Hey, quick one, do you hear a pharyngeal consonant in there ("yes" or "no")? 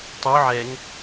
yes